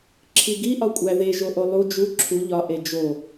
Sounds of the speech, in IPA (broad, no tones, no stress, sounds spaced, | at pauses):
ǁʰ i ɡ i ʔ ɒ kʷʼ æ ð e ʒ o ʔ o lˠ u d͡ʒ u ǁʰ u ʎ ɒ ʔ e d͡ʒ o